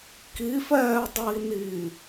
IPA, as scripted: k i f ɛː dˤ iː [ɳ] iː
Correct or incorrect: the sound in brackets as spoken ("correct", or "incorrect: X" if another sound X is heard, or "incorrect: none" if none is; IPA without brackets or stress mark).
incorrect: n